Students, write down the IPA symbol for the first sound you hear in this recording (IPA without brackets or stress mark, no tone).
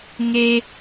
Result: ŋ